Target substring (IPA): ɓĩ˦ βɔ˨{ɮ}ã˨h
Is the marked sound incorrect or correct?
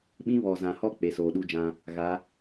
incorrect